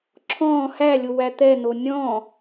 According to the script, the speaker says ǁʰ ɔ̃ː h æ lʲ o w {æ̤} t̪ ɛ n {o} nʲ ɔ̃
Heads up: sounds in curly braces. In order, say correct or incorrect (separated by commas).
incorrect, correct